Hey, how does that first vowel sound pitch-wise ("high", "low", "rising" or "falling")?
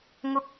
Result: high